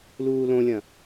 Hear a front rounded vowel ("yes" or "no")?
no